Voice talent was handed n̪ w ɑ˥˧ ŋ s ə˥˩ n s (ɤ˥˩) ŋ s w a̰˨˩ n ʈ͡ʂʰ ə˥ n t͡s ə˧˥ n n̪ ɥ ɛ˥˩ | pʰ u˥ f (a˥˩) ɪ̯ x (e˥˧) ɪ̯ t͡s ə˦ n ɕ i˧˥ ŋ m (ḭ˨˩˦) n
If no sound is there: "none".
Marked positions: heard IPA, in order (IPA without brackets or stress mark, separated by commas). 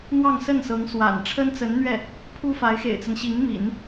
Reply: ɤ˧˥, a˧˥, ḛ˨˩, ḭ˨˩˦